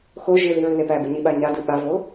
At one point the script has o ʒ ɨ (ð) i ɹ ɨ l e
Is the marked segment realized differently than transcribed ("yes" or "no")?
no